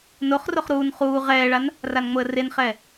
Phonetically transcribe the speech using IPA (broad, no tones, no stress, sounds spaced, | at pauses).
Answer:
n o χ r o χ ɾ uː n χ uː ʁ ɛː ɭ a n | r a n ŋ͡m o ə̯ r e n χ ɛː